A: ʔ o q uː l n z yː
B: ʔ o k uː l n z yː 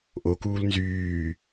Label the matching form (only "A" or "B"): B